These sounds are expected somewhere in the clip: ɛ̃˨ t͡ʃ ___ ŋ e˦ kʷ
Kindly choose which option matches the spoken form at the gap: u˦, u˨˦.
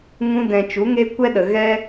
u˨˦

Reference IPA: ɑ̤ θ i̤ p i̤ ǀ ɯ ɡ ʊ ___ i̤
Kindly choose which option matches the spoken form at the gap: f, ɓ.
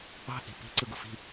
f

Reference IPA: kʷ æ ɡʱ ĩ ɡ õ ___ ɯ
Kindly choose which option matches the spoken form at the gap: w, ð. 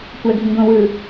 w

